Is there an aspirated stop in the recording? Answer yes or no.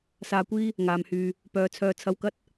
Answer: yes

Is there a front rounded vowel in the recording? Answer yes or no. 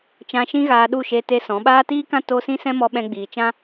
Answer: no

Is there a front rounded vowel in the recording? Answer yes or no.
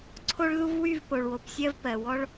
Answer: yes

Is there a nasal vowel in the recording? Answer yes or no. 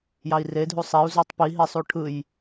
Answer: no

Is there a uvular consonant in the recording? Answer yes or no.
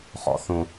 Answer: yes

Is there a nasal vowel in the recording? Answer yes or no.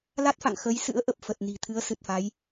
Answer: no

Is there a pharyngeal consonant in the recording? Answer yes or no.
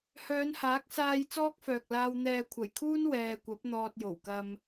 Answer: no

